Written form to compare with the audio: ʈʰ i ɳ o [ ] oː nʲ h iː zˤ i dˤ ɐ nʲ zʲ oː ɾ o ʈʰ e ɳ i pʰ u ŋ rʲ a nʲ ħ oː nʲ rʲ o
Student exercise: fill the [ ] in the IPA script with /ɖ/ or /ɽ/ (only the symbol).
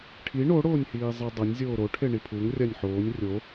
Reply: ɽ